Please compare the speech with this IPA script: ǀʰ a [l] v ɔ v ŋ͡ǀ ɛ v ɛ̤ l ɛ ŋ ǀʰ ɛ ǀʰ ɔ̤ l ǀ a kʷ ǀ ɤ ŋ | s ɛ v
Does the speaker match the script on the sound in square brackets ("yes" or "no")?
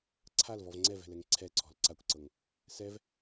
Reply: yes